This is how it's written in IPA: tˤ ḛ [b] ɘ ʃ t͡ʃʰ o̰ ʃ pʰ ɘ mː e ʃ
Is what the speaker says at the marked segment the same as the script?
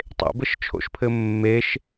yes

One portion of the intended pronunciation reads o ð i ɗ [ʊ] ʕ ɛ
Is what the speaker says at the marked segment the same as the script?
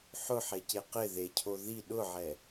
yes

